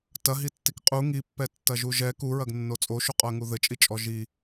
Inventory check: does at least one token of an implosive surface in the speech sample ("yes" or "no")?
no